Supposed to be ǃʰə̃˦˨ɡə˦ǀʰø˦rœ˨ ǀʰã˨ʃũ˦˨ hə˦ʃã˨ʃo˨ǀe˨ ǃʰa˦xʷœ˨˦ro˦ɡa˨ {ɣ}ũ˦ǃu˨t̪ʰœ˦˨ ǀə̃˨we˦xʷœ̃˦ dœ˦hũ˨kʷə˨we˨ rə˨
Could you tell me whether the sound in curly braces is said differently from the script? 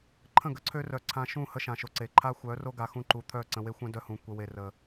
yes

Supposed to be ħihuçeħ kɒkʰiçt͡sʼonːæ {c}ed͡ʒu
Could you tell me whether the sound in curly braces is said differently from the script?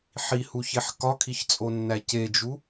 no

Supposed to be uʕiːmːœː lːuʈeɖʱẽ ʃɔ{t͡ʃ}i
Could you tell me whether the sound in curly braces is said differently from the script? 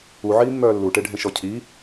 yes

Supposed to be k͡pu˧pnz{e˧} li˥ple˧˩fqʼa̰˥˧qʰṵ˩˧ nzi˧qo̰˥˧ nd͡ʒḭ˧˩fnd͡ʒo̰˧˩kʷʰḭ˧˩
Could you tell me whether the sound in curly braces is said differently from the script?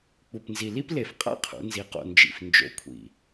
yes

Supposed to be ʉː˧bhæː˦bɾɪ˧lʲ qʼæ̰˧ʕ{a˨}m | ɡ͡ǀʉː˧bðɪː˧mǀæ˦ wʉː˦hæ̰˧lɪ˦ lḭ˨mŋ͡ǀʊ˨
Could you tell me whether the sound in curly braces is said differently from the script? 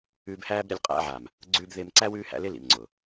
no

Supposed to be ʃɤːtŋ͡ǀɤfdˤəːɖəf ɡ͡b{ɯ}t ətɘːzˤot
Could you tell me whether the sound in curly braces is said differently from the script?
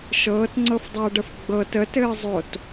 yes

